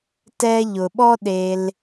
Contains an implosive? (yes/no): yes